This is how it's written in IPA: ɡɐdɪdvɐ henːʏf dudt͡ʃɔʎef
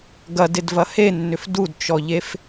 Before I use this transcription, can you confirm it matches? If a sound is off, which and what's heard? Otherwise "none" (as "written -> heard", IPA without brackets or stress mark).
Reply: none